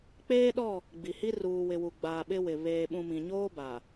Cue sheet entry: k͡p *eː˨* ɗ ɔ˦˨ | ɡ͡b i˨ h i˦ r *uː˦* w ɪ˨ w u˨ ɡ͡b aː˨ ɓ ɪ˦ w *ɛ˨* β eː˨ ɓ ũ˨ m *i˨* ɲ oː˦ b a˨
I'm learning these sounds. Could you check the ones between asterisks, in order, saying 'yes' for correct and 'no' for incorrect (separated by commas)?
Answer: no, no, no, no